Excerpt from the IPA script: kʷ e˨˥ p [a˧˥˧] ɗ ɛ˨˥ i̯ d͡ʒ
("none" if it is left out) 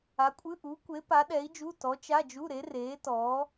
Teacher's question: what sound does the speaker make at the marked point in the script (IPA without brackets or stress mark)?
a˨˥